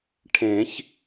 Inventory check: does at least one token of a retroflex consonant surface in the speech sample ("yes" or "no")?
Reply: yes